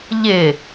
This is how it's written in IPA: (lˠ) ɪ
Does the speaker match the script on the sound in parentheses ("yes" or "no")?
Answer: no